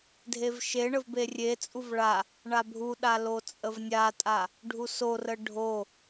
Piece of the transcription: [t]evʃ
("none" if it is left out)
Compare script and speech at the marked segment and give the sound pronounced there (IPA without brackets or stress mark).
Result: dʱ